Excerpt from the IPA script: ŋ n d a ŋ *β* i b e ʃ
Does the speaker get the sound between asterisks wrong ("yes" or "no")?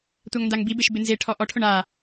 yes